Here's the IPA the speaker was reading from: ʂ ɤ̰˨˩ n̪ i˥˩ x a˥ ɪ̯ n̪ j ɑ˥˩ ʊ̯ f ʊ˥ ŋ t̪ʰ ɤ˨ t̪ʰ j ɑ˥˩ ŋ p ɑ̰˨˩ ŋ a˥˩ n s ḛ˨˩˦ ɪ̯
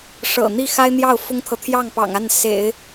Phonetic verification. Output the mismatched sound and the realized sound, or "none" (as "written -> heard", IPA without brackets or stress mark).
none